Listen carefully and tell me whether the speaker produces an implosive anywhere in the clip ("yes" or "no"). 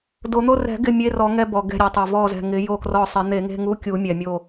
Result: no